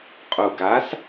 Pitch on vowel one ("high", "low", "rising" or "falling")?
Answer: low